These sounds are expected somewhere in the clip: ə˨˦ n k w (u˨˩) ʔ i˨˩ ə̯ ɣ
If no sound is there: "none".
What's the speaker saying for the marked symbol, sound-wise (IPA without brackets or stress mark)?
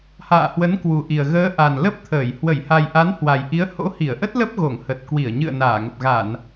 u˨˩